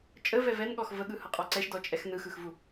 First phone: t͡ʃʼ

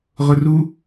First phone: ʁ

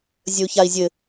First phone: zʲ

